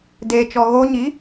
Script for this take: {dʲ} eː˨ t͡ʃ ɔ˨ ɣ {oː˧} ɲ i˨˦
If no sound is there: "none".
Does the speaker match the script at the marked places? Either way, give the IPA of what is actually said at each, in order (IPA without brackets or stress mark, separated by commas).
d, oː˧